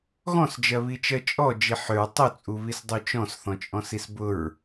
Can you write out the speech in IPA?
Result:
ɣɔ̃sd͡ʒɜβit͡ʃɜ t͡ʃʼɔ d͡ʒiħʏɹ tˤut͡sʼuβis dˤut͡ʃɔ̃sθɔ̃t͡ʃʼɔ̃s isbʊɹ

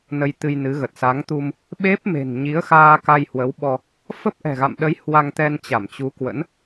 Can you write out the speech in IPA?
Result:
nə˧jt̪ɨ˧jnɨ˨˦ɣə˨˩t̚ sa˨˦ŋt̪u˧m | ɓe˦˥p̚ me̤˨˩nɲi˨˦ə̯ xaː˧ka˧jhwə˨˦wɓɔ˧ | fə˦˥p̚ʔɛ̤˨˩ɣa̰˧˨mɗə˨˦j hwa˧ŋt̪ɛ˧n t͡ɕa˧˩mt͡ɕu˨˦kwə̰˧˥n

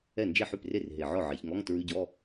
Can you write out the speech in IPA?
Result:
ɛ˥˩ nd͡ʒe˥˩ħʉ˥˩pre˥˩r ɦe˨˩ʕɔ˥˩ʕe˩˧çŋɔ˧˥˧ŋ tɹʉ˧˥˧ɟɔ˧˥˧

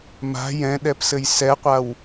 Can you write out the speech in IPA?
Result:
ma̤ jɛ̃ɗɛpsɘj sɛqʷaw

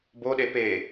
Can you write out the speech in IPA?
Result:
boɗe pe

